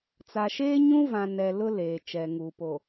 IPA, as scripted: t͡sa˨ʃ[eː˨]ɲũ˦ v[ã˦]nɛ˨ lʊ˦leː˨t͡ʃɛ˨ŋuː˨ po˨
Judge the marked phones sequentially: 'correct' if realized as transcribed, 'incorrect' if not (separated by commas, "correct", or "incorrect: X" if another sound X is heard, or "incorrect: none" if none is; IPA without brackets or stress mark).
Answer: incorrect: eː˦, incorrect: ã˨